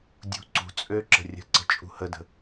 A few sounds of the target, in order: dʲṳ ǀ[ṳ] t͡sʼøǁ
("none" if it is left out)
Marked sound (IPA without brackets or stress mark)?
ṳ